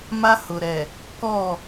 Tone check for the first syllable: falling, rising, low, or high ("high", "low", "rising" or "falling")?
high